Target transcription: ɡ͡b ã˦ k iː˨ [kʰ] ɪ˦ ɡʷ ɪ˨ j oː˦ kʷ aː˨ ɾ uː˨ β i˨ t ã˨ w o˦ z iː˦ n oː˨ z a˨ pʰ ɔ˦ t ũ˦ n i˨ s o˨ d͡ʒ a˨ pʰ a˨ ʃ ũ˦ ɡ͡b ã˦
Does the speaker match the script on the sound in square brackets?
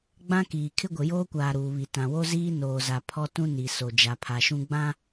yes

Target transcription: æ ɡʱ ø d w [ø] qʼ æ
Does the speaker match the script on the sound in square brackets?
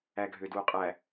no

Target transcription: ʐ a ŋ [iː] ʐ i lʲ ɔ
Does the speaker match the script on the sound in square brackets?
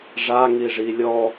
no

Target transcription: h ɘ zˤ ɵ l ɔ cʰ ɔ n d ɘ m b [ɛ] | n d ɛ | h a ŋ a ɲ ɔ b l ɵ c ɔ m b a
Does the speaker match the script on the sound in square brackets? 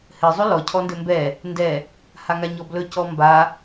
yes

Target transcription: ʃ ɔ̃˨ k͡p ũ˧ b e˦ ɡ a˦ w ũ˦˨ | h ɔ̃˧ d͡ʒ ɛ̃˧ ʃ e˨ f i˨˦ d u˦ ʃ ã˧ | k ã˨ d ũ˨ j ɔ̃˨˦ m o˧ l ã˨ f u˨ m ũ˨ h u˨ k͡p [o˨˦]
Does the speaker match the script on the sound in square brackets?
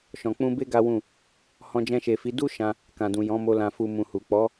no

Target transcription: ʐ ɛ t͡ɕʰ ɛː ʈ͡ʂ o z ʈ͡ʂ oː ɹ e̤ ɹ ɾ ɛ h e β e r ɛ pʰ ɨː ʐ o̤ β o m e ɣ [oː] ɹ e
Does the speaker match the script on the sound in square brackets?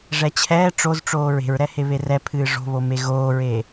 yes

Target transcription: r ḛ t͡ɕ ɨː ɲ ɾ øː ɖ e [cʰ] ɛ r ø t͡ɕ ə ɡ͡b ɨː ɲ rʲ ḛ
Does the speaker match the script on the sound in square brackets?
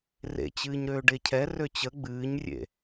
yes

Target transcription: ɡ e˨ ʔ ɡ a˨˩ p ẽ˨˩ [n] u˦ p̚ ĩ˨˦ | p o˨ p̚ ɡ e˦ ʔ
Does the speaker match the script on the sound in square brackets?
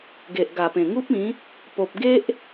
no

